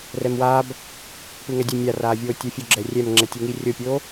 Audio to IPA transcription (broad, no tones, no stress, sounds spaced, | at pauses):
r ɛ m w aː b | p ɯ ŋ ɛ dʲ ʌ mʲ a r aː vʲ oː tʲ o fʲ u ɡ͡ǁ ɛ rʲ ɛ m ŋ͡ǁ ɛ tʲ e ŋ i rʲ o pʲ oː